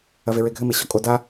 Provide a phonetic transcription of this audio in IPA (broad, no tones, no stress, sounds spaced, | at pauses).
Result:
ɐ v e ɹ e ɡʱ ɘ m e ɕ ɔ kʼ o d a